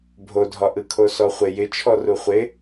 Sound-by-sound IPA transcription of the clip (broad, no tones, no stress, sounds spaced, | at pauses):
bʱ o dʱ ɒ ʔ ɯ kʰ o s ɔ χʷ ɪ j ɪ t͡ʃʰ ɔ r u χʷ ɪ